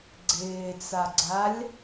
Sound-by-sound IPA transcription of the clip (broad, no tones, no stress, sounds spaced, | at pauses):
ɡ͡ǀ ɪː t͡s a ɡ͡ǀ a lʲ